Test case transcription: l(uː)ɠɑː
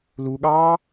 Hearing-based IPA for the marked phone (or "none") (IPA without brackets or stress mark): u